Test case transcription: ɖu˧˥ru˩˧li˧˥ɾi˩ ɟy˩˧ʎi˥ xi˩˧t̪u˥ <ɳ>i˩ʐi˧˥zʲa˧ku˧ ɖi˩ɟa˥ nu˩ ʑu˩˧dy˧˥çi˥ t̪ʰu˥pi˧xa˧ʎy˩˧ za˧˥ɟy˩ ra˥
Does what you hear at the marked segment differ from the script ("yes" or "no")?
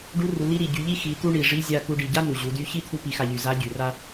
no